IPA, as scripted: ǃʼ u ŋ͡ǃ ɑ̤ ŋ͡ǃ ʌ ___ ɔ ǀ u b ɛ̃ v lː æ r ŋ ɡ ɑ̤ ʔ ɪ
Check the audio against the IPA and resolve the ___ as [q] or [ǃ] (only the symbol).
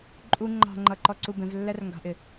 ǃ